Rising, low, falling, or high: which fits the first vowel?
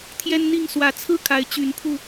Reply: high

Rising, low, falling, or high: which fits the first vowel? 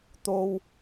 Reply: high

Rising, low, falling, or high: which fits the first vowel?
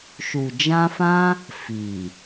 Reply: low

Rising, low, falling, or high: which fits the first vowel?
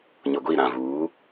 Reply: low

